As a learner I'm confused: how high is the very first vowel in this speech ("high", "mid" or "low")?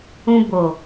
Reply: high